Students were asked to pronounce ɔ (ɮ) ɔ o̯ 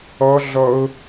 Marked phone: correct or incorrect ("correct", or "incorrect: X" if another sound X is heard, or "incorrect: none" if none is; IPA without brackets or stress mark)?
correct